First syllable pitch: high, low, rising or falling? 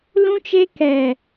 high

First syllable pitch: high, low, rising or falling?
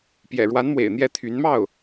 low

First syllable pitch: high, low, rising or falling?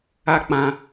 high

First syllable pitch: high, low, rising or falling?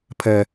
high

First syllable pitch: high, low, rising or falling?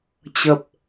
low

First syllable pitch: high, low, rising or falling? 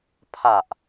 low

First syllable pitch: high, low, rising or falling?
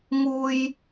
high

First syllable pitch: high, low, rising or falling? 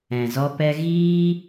low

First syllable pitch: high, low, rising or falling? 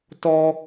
high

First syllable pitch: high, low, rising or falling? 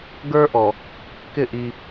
high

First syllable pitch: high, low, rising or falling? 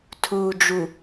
low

